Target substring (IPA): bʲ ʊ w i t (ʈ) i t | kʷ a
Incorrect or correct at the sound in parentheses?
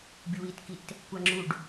incorrect: k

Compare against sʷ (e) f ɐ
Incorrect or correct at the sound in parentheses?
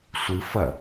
incorrect: ɨ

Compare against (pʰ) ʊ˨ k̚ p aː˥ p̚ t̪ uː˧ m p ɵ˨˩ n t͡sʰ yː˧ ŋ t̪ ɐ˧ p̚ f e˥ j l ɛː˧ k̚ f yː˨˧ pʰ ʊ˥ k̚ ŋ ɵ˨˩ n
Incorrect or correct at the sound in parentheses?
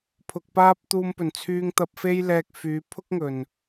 correct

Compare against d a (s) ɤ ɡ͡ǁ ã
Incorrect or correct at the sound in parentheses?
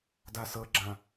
correct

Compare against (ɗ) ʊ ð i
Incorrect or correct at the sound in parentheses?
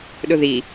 correct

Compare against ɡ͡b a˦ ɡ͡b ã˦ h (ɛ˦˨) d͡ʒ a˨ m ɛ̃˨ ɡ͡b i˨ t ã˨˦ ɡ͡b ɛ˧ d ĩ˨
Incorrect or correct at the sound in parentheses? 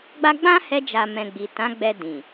incorrect: ɛ˧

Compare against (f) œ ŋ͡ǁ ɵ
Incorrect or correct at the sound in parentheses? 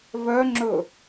incorrect: v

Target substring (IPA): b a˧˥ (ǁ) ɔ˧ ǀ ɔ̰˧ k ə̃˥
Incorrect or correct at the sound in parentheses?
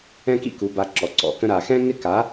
correct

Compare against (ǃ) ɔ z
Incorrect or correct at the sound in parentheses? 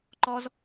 correct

